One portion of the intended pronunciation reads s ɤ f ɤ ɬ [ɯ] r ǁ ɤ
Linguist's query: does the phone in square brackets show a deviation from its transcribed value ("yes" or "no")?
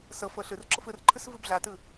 no